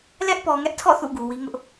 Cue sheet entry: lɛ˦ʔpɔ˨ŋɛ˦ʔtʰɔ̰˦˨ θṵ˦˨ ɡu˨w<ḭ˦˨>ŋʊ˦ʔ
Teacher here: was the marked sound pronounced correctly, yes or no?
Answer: no